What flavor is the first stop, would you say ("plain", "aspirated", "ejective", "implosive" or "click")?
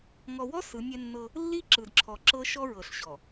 click